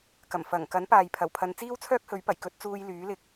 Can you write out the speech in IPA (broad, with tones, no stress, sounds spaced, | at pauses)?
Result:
k ɐ˨˩ m f ɐ˨˩ ŋ k ɐ˨˥ n p aː˨ j pʰ ɐ˨˩ w pʰ ɐ˨˧ n t͡s iː˥ w t͡sʰ œː˥ k̚ h ɵ˨˥ ɥ p ɐ˨˩ j k ɵ˧ t̚ t͡s uː˧ j l yː˨˥ l ɪ˧ k̚